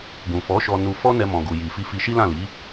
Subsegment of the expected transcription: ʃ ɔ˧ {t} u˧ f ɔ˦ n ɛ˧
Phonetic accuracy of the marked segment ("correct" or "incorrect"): incorrect